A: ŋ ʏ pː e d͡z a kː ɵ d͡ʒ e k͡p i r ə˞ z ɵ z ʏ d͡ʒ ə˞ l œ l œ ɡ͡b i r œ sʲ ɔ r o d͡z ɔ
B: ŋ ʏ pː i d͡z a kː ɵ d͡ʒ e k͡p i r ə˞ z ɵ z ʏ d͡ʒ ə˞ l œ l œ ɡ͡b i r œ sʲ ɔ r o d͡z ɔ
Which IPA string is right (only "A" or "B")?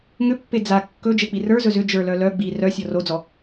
A